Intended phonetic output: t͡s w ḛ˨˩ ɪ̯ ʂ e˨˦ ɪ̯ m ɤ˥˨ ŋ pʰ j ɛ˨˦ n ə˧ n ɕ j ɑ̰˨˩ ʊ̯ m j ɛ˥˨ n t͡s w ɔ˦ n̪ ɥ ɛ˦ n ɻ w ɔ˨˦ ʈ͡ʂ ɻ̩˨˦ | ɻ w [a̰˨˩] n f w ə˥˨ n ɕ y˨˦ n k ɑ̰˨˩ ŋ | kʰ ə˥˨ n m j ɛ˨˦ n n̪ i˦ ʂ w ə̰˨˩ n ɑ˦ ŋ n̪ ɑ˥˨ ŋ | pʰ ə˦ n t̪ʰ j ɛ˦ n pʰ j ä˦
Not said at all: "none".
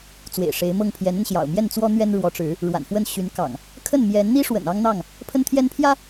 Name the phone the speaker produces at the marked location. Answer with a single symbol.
a̰˨˩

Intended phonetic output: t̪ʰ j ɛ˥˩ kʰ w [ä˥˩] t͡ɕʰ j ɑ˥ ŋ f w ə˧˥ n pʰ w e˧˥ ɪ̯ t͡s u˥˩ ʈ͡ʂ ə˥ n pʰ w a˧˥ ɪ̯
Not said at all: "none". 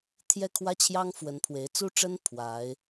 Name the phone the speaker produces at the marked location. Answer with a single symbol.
ä˥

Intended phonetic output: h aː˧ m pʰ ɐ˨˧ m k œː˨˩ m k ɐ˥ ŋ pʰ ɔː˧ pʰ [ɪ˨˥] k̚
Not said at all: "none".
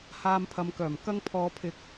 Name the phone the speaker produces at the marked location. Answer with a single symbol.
ɪ˧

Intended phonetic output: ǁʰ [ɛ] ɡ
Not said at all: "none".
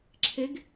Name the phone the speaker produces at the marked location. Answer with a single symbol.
e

